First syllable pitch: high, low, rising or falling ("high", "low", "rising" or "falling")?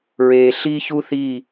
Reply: low